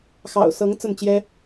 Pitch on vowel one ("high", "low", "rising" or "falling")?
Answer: low